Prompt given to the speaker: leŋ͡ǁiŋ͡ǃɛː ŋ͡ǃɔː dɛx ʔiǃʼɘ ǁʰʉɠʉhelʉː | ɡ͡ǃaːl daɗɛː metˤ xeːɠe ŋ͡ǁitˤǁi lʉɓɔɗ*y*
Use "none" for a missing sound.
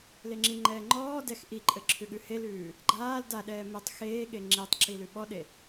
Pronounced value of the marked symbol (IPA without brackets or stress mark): e